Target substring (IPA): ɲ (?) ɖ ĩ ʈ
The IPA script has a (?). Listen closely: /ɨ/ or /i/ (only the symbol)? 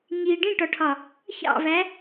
i